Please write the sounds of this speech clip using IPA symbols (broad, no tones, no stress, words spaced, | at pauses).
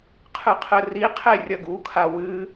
qʰɨqʰɘriqʰe rʲɐɡukʰa wɨ